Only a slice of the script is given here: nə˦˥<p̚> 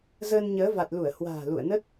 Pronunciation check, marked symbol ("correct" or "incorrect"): incorrect